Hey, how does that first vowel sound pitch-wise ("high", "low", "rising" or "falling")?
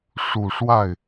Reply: low